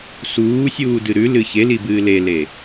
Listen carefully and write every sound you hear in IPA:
s uː sʲ uː d ɨ ɾ ʉ l ɨ ç e l i b ɨː l e l e

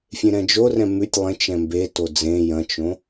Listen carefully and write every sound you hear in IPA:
fʲ ẽ ɾ ɛ̃ d͡ʒ o r ɛ̃ m ʉ tʲ lˠ ẽ t͡ʃ ɛ̃ m b e t o d͡z ẽ j ɐ̃ t͡ʃ õ

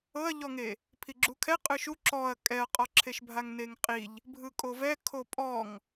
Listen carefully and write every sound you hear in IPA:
ɤ ɐ̯ ʎ ɔ ŋ e | pʰ i ɡ͡ǁ u kʰ ɛ qʼ ɯ ʃ u ǁ ɔ ɐ̯ kʼ ɛ ɐ̯ qʼ ɔ ǁʰ e ʃ bʱ a ŋ n e ŋ qʼ i ʎ | bʱ ɯ kʼ o v ɛ kʰ o pʼ ɔ ŋ

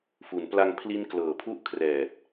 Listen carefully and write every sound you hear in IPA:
f u˩˦ n p l a˧ ŋ pʰ l i˦˥ n k l ɤː˨˩ pʰ u˥˩ ʔ kʰ r ɛː˨˩ t̚

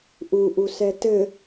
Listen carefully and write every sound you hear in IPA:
ʔ u ʔ u s ɛ t ɘ

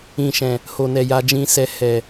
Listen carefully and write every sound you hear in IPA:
ĩ˨ ʃ ɛ̃˨ | h o˨ n ɛ˨ j a˧ d͡ʒ ĩ˧ s ɛ˧ h ɛ˨

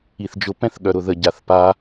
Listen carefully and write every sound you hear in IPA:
i θ d͡ʒ ʊ p ɛ̃ θ ɠ œ ɾ ʊ ð ə ɟ a θ p a

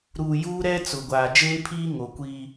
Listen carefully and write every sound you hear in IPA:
ɾ uː˨ j uː˦ ɾ ɛ˦ t͡s ʊ˨ ɡʷ aː˨ d͡ʒ eː˦ pʰ iː˦ ŋ o˨ kʷ iː˦

